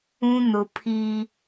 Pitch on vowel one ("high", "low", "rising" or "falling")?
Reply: high